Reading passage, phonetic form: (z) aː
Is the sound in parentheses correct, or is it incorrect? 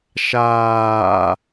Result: incorrect